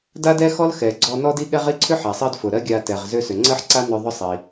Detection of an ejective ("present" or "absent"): absent